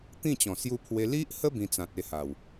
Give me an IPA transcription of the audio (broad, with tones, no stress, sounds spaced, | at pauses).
t̪ ĩ˥˧ t͡ɕ ɔ̃˨˩ s j u˧ pʰ w e˧ l i˦ ʔ h ə˦ b ĩ˧ t͡s ã˨ t̚ e˧ h a˨˩ w